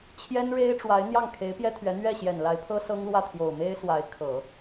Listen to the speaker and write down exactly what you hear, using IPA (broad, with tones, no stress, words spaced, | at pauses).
t͡ɕʰjɛ˥nɻe˥ɪ̯ʈ͡ʂwa˧˥ɪ̯ n̪jɑ˥˩ŋkʰe˧˥ɪ̯pjɛ˥t̪ʰɥɛ˧˥ n̪ɥɛ˥˩ɕjɛ˨˩nla˧˥ɪ̯pʰɤ˥ sɤ˥ŋlwä˥˩t̪ʰjo˨˩ʊ̯ me˥ɪ̯swa˧˥ɪ̯ kʰɤ˨˩˦